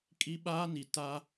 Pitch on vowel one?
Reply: high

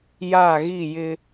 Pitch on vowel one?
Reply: falling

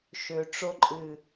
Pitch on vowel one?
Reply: low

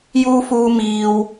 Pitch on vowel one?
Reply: high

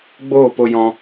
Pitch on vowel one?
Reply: falling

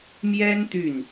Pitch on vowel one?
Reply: high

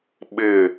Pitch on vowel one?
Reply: falling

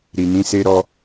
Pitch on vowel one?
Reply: low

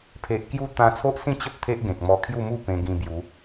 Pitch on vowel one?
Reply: low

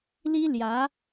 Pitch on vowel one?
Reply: high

